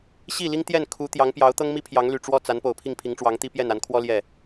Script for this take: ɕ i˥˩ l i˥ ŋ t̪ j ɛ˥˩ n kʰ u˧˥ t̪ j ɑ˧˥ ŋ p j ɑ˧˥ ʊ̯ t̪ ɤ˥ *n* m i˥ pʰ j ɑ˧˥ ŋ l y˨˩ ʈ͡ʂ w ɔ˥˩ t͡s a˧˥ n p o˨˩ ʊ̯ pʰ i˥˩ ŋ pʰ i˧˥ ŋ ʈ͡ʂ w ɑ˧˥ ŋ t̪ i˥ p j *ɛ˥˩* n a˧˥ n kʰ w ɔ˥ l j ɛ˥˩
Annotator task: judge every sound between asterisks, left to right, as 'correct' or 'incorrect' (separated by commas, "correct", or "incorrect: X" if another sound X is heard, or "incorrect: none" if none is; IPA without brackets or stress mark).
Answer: incorrect: ŋ, correct